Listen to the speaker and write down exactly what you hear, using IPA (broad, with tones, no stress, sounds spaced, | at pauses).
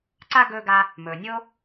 ǀ a˥ ɡ ɵː˦ ɡ a˦ | m ɵː˨ nʲ o˥